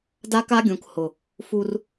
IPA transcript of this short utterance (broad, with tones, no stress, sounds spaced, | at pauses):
d a˦ k a˦ ɡʲ ũ˨ k h ʊ˨ | f u˦ r